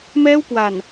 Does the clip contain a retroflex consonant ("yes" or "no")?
no